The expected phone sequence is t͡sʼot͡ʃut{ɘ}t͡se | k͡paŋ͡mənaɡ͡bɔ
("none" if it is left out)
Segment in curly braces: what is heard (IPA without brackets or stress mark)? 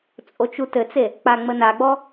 ɘ